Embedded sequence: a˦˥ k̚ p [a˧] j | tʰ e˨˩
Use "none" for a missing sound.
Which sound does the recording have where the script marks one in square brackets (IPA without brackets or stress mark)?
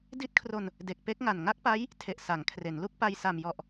a˦˥